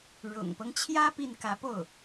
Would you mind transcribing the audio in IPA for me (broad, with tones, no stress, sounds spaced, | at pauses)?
ɻ ʊ̰˨˩ ŋ p ɤ˦ ŋ t͡ɕʰ j ä˥ p i˥˩ n k ä˧˥ p o˥˩ ʊ̯